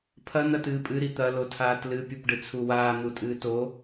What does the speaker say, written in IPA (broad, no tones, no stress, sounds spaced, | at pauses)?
pʰ ɐ n̪ ɐ t ɨː pʼ ɨ ɾ i t̪ ɐ l o tʰ aː t l ɨ pʲ u p ɖ ɨ t͡sʰ u w aː n̪ u tʼ ɨː t o